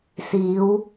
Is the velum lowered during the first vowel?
no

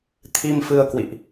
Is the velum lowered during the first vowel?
no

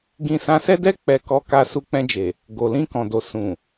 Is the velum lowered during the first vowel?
yes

